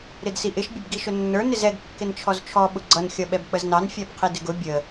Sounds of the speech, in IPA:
ɾ ɪ d s i ʔ ɪ ʃ bʲ ə b ɡ i ʃ ʊ nː ə˞ n ɪ z ɛ ɡ kː ɪ n t͡ʃʰ ɔ z t͡ʃʰ ɔ ɓ ʊ ɡ͡ǀ ʌ n xʲ ʌ ɓ ɛ b k͡p ə z n ɑ n fʲ æ b qʰ i d ɪ ɡ ʊ bʲ ə

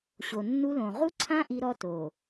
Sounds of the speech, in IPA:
ɕ o˨ nː u˦ l õ˨ ʁ u˦ ǀʰ ã˦ ʔ i˦ ɾ ɔ˦ t o˨

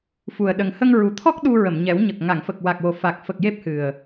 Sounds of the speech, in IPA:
f u˨˩ ə̯ ɗ ə˨˩ ŋ h ə˧ ŋ ɹ u˨˩ t̪ʰ ɔ˦˥ k̚ ɗ u˧ ɹ ə˨˩˨ m ɲ ɛ˨˩˦ w ɲ ə˨˩ k̚ ŋ a˨˩˨ ŋ f ə˨˩ k̚ w a˨˩ k̚ w o˨˩ f a˨˩ k̚ f ə˨˩ k̚ j e˦˥ p̚ h ɨ˨˩ ə̯

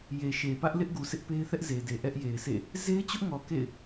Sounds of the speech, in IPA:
j e˨ ʃ e˨ p ä˦ ʔ l ɪ˦ ʔ ɡ u˨ sʰ ɪ˦ ʔ p e˦ ɪ̯ θ ɛ˦ ʔ z e˨ d e˨ ʔ ɛ˦ ʔ j e˨ ɪ̯ sʰ ḛ˦˨ | z e˦ ɪ̯ t͡ɕ ʊ˦ ʔ ŋ ɔ˨ k ḛ˦˨ ɪ̯

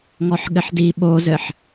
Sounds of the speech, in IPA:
ŋ ɔ ħ ɠ ɘ ħ d i ɓ o z ɘ ħ

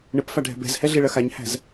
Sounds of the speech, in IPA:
ɳ ɘ p f a ɖʱ ɛ̤ b ɛ̤ z h ɛ ɮ e ɭ ɐ x a ɲ h æ̤ z

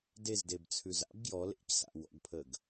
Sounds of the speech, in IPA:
d e z d e b t͡sʰ ʉ z a̰ b ɡ j ɔ l ḛ c s a̰ w ɔ̰ ɡ pʰ əː ɡ

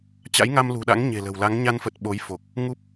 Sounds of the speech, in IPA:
t͡ɕ a̰˧˥ j ŋ a˧ m l ṳ˨˩ ɗ a̰˧˥ ŋ ɲ e̤˨˩ l ə̤˨˩ w l a˨˦ ŋ ɲ a˧ n f ə˨˩ t̚ ɓ o˨˦ j f o˨˩ k̚ | ŋ u˦˥ p̚

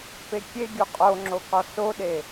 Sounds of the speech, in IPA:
p e kʲ e ɡʲ u qʼ o ŋ͡ǁ o k ɒ s o ɗ e

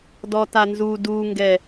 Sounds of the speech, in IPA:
d ɔ t a n z u d u ŋ ɡ ɛ

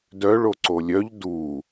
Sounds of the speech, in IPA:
d œ ɭ o ǀ o lʲ œ ʎ d u

